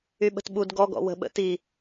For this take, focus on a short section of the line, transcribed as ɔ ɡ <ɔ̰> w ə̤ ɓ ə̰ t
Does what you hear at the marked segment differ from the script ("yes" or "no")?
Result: no